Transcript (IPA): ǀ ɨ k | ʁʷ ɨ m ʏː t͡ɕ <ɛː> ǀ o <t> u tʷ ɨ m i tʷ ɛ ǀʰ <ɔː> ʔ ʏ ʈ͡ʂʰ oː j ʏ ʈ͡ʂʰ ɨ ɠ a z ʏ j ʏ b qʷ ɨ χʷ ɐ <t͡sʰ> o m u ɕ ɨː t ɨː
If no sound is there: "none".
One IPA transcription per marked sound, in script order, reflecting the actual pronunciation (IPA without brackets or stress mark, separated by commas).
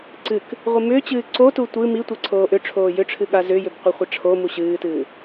ɨː, t, oː, ʈ͡ʂʰ